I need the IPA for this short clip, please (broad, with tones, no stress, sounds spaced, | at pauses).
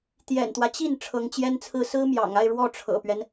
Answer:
t̪ j ɛ̰˨˩ n t̪ w ä˦ t͡ɕ i˥˩ n ʈ͡ʂʰ ɤ˧˥ ŋ t͡ɕ j ɛ˥ n t͡sʰ ɹ̩˥˩ s ɹ̩˥ m j ɑ̰˨˩ ŋ a˥˧ ɪ̯ ɻ w ɔ˥˩ ʈ͡ʂʰ ɤ̰˨˩ p ɥ ɛ˦ n